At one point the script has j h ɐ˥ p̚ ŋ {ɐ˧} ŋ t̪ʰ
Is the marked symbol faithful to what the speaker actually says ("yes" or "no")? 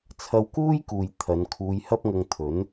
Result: yes